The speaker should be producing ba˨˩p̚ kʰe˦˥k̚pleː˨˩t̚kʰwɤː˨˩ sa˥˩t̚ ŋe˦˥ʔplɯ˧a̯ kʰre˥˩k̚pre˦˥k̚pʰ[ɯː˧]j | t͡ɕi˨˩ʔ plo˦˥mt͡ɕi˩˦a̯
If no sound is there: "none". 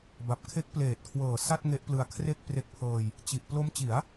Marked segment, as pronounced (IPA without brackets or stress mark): ɤː˧